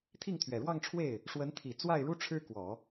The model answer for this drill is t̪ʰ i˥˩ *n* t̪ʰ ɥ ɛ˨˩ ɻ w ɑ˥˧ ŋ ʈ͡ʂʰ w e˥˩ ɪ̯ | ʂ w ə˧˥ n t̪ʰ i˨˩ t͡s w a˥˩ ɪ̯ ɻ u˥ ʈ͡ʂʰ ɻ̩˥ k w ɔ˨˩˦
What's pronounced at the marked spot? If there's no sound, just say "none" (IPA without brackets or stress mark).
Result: ŋ